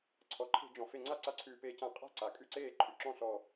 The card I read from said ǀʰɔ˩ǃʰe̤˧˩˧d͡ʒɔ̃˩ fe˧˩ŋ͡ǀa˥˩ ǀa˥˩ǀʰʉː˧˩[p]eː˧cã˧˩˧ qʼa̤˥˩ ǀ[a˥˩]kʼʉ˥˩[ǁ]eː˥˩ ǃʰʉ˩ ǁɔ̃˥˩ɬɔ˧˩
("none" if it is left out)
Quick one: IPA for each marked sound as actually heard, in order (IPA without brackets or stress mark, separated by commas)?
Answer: p, a˩, ǀ